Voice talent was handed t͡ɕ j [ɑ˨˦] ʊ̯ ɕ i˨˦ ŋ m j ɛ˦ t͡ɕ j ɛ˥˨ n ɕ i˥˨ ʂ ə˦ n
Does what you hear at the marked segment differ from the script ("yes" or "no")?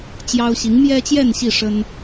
yes